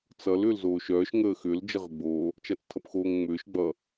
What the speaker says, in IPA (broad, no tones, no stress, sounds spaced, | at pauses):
t͡s ʌ l ʏː l z oː ʃ œː ʃ ŋ əː x ʏ l d͡ʒ ə ʁ ʏ ɡ͡b oː | t͡ʃ a t͡s tʰ ʌ p x oː ŋ ŋ͡m ʏː ʃ ɡ͡b ʌ